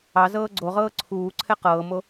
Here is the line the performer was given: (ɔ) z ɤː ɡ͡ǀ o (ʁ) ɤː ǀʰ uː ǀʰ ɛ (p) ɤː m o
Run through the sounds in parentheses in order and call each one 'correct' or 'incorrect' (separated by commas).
incorrect, correct, incorrect